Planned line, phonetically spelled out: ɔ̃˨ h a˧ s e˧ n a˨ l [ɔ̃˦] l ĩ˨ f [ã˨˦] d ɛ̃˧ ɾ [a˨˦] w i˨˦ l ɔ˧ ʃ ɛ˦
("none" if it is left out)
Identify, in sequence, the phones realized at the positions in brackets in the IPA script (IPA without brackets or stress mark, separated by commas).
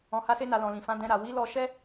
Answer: ɔ̃˨, ã˨˦, a˨